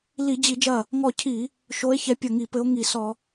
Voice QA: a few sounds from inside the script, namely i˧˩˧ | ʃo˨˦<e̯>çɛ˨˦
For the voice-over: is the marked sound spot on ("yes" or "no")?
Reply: yes